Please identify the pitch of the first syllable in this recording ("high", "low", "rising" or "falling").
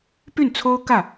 falling